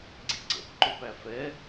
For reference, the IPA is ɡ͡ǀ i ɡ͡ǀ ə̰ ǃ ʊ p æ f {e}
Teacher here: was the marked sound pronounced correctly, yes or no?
no